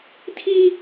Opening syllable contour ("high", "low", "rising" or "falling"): high